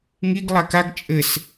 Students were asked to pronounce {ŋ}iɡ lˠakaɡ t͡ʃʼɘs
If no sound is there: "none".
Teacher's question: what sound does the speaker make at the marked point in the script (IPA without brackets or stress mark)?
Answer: ŋ